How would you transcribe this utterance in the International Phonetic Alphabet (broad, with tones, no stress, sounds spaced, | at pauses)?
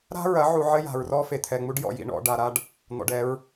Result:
ɾ a̤˦ ɹ ɐ˨˦ ʕ u˨ ʕ ɘ˦ j a̤˨ ɹ r ɔ˦ f e˨ t̪ʰ ɛ˨ ŋ͡m u˦ ɖ j ɔ̰˨ j ḭ˨ ɳ ɔ̰˨ ɖ a˨ ɾ a˦ ɖ | n̪ ɔ̰˨ ɖ ɛ˨˦ ɹ